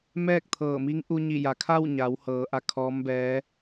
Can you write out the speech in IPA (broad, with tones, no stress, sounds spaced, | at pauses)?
m ɛː˥˨ k̚ t̪ʰ ɤː˧˩ m i˧˥ ŋ ʔ u˧ ɲ i˧˩ j a˩ kʰ a˥˨ w ɲ a˩˧ w h ɤː˩˧ ʔ a˧ kʰ ɔː˧˥ m b ɛː˧˥